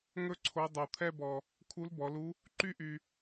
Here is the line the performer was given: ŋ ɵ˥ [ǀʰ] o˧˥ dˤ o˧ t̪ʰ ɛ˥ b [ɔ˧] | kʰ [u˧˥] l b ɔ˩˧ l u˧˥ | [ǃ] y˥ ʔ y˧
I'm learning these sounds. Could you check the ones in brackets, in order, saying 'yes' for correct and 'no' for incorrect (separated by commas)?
yes, yes, yes, yes